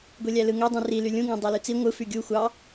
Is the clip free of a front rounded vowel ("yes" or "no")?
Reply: no